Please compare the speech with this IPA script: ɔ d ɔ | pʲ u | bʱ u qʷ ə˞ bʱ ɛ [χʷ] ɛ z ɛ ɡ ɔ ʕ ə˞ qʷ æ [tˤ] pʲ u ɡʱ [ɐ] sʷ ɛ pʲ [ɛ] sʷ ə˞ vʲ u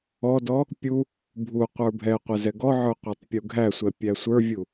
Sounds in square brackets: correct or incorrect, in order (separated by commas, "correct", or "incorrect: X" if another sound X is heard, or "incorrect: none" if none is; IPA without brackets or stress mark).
incorrect: qʷ, correct, incorrect: æ, incorrect: æ